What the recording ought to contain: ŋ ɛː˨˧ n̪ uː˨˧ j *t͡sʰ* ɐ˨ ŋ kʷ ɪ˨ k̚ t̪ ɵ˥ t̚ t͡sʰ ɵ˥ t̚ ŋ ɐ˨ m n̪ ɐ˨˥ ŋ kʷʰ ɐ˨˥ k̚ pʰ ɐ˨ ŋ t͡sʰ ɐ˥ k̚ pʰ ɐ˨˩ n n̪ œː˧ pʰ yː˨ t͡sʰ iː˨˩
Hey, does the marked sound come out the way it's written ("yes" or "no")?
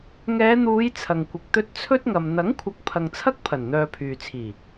yes